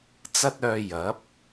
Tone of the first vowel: high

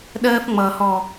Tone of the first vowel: high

